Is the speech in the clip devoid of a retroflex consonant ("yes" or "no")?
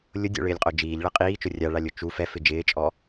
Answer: no